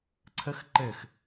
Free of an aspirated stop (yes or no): no